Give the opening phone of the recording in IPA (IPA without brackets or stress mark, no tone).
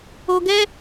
o